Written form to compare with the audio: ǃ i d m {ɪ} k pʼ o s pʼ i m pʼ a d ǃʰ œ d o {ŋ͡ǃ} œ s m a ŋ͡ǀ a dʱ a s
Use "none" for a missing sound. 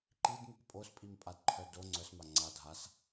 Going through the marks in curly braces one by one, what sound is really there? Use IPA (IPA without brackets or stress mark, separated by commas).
ɪ, ŋ͡ǀ